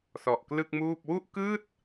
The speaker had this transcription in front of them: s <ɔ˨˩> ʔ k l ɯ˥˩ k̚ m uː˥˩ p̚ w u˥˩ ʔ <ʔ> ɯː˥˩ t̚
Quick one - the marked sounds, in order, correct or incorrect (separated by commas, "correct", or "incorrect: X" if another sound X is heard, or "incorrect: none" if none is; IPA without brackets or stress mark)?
correct, incorrect: k